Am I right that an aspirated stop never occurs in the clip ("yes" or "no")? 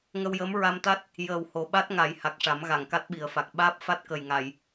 yes